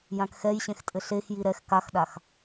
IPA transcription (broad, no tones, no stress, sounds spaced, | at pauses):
j ã k x ɛ j ɕ ẽ x tʼ ɘ ɬ e x j i ɾ ɛ x k a x ɗ a x